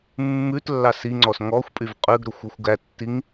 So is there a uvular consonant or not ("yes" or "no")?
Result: yes